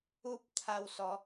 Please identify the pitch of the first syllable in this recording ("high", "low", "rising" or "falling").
high